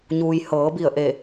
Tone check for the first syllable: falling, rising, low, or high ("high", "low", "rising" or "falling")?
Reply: low